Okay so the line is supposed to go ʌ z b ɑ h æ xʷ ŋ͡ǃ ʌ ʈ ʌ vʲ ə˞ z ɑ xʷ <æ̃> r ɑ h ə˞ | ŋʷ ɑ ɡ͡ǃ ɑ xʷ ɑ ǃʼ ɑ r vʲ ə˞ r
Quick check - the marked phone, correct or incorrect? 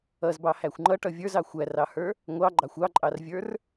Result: incorrect